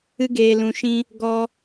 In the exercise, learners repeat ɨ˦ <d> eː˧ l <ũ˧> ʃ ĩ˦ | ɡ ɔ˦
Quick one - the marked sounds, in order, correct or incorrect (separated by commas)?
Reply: incorrect, correct